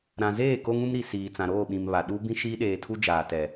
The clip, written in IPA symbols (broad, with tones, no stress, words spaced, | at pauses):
ɾã˨zeː˦˨ ko˦ŋũ˦mɾi˨ siː˨t͡sã˨ɾoː˦˨ɓĩ˨m βa˨ ɗu˦ bĩ˦ʃiː˦ɗeː˨tʰu˦ d͡ʒaː˨tɛ˨